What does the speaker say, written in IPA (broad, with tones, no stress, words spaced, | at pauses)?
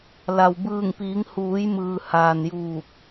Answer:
la˩wbɯː˧˩ŋpiː˩˧ŋhuː˩˧j mɯː˩haː˩njuː˧˩k̚